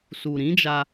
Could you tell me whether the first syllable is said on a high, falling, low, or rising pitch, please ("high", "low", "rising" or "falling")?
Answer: low